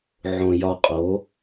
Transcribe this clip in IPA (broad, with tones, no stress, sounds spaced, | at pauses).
ʕ õ˧ j ɒ˧ qʼ o˨˥